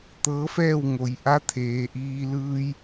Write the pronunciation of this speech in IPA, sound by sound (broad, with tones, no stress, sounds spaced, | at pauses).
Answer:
t̪ ɤː˧˥ f ɛː˥˨ w ŋ o˩˧ j ʔ a˧˥ t̪ʰ eː˩˧ ʔ iː˧ l ɯː˧ j